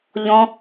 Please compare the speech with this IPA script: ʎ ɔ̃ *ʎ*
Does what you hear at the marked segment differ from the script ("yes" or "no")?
yes